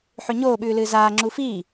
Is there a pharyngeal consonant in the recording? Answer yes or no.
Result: yes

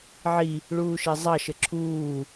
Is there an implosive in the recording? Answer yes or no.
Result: no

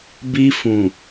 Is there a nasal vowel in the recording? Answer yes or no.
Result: yes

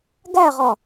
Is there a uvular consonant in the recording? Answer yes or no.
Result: yes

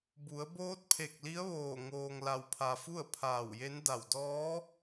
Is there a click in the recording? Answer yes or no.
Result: no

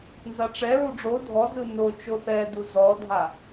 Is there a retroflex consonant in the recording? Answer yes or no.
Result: yes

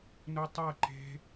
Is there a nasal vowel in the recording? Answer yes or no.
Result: no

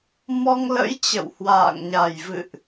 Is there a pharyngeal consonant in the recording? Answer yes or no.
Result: no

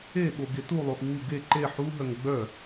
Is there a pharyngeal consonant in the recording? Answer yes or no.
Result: yes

